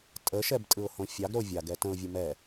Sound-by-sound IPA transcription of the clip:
tʼəʃɛbtʼɯʊ̯hõ fʲɑɡɾo vʲaɡɛ tə̃ʊ̯vʲɯ mɛ

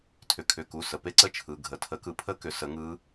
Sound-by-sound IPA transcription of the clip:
tʰʏ˩˧˩kʰʏ˩˧˩ku˩˧˩ sə˩˧˩pe˦˥ ǀə˦˥t͡ʃʰɯ˩˧˩ɡʱə˩˧˩ tʰə˨˥kɯ˨˥ pʰə˦˥kʏ˨˥ sə˨˥ŋɯ˦˥

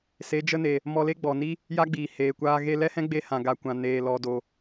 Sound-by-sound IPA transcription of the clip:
se˨˦d͡ʒə˦ne˨ | mɔ˧le˦ ɡ͡bɔ˨ni˦ | ja˦ɡ͡biː˨ heː˨kʷaː˧ ɣe˧lɛ˦hɛ̃˦ɡ͡be˧ hã˨ɡa˨kʷã˨ neː˨lɔ˨do˨

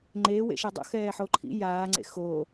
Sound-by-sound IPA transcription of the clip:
ŋ͡ǃeːwḛʃɛ dˤo̰xɛːħo ǃʰḭ jaːŋ͡ǀḛ xo

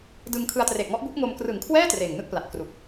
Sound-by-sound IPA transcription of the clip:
dɯ˧ŋkʰɯ˧a̯ tre˨˩k̚ŋɔ˦˥ʔbu˦˥ʔŋo˧m krɯ˩˦ŋkʰwɛː˥˩ treː˨˩ŋnɯ˥˩k̚pla˨˩t̚ kru˨˩k̚

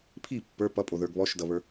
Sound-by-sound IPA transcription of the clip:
pʰi pːə˞ pʌpʼoðə˞ɡ βɔʃdʌβə˞

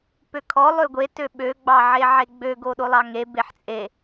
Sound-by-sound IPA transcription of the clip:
pøkʰɔ lˠøɡʷe tøɓø ɡ͡bɑʕeʕeɡ͡bø ɡoɗolˠɑŋe beħt͡sʼe

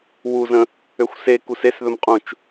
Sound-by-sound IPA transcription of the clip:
wuzə̃ | øxʷse kusesðɵmqʼũt͡ʃ

